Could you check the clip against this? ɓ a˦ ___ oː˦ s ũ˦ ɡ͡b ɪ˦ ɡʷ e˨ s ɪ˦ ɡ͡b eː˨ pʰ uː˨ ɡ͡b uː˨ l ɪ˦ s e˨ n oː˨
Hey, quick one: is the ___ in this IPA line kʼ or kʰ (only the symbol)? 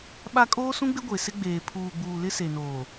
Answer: kʼ